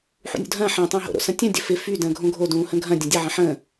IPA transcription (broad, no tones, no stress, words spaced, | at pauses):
ħṵnʲṵdʱɐ̃ː ħə̃ːtˤə̃ː ɦo̰ɾo̰ sɐ̃tʲə̃ dʲəfɪ fy də̃ːɡʱõɡʱo dũːhə̃ɡʱɐ̃ dʲɐ̃dʲə ʕɐ̃ħə̃ː